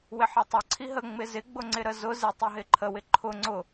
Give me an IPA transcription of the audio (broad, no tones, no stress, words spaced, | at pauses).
wɪħitˤə ǀʰiɦə ŋ͡mɪzɪ ɡ͡bʊŋ͡ǀɪɾəzʊ zɪ tˤiɦɪǃʰə wɪǃʰʊ ŋ͡ǀʊ